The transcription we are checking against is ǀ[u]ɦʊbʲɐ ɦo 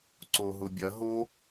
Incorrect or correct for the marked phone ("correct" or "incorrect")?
incorrect